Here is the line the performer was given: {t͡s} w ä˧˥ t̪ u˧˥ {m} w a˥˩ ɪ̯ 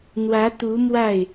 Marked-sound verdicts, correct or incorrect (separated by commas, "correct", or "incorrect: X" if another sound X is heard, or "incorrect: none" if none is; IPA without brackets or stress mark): incorrect: n̪, correct